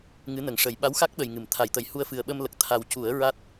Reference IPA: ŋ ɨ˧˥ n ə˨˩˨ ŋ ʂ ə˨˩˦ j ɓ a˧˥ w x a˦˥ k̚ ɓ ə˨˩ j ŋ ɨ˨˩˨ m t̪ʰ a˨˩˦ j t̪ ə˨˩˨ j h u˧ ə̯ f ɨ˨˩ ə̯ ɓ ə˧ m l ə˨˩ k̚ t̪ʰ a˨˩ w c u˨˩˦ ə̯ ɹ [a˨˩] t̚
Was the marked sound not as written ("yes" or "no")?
yes